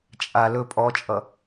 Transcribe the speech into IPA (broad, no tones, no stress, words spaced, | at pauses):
t͡ʃʼa lɵ pʼɔt͡ʃʼʌ